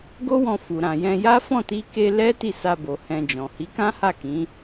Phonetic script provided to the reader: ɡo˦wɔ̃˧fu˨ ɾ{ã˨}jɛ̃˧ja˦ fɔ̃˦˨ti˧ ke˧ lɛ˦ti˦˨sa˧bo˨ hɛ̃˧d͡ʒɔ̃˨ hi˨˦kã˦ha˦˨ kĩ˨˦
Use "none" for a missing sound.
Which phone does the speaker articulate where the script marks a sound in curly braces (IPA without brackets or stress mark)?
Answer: ã˨